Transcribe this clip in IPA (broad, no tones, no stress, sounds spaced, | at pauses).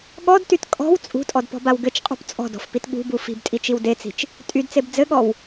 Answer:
ɠ ɔ d t y t kʼ ɔ̤ w t͡sʼ ṳ tʼ ɔ d p ɔ̤ b a w ɡ ɘ t͡ʃ qʼ ṳ p t͡sʼ ɔ̤ d ɔ̤ f p i t ɠ ṳ b u f i̤ b tʼ i t͡ʃ i w d e t͡s i̤ t͡ʃ | tʼ y d t͡s e b d͡z ɘ ɠ ɔ w